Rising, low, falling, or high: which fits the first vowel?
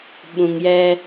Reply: low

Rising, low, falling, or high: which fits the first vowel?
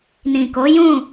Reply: low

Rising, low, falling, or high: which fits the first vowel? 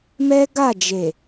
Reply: high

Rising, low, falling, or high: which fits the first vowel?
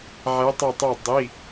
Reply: rising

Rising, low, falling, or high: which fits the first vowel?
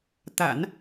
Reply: low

